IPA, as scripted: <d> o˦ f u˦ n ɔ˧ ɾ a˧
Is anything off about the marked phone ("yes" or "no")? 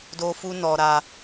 no